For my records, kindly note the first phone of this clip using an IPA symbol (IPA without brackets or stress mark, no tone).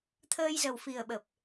t̪ʰ